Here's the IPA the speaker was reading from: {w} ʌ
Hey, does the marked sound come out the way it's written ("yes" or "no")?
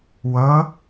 yes